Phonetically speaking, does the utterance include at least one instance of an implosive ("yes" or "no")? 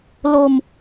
no